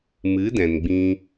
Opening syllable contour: rising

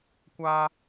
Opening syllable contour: high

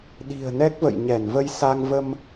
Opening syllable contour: low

